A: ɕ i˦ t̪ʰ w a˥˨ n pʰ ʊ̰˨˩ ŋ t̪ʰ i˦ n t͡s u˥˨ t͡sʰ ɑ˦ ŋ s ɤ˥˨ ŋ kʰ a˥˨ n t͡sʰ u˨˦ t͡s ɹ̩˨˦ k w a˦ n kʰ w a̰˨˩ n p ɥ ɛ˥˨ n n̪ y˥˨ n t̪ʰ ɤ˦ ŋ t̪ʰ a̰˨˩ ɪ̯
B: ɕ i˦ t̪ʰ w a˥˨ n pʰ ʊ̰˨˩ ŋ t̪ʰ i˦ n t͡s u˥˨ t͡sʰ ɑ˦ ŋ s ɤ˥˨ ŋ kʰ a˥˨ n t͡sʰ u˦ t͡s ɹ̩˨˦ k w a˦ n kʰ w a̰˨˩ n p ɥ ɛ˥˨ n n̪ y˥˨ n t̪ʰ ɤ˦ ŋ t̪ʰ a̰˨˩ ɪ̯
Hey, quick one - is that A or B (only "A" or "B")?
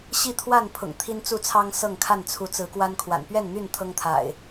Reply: A